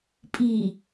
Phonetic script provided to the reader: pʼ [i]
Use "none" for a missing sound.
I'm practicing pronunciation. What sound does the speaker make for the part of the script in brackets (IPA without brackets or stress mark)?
i